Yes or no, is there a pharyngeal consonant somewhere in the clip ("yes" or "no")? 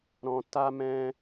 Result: no